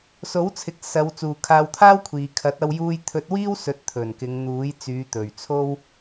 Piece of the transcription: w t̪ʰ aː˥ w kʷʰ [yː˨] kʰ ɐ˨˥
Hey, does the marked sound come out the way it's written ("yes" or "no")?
no